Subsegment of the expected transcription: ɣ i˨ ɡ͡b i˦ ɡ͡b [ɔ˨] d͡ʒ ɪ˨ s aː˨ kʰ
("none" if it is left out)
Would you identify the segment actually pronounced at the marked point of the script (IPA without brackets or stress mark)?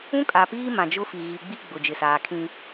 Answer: ʊ˨